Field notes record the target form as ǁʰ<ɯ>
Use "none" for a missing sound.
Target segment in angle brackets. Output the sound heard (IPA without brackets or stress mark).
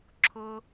ʊ